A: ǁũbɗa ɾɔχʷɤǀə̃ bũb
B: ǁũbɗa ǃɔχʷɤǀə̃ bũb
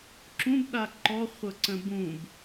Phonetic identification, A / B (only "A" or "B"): B